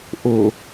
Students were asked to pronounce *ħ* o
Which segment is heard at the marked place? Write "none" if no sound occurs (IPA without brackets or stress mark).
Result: ʔ